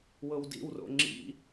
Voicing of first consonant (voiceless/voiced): voiced